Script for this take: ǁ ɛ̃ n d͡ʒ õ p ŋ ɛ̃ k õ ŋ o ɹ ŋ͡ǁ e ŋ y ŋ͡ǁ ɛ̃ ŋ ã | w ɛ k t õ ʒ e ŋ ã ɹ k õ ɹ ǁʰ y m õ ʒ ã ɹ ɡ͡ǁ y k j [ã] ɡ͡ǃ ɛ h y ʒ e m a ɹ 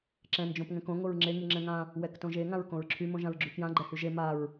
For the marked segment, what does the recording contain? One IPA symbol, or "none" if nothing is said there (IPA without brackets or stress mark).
ã